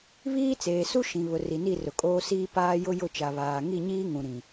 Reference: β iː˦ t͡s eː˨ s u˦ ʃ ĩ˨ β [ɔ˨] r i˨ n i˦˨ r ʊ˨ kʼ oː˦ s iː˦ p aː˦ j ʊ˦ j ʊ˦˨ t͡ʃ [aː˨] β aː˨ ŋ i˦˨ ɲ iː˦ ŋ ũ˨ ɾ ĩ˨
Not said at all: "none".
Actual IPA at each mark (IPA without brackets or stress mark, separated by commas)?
ʊ˨, a˨